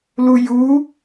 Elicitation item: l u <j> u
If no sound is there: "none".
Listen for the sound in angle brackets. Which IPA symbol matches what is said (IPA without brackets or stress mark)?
j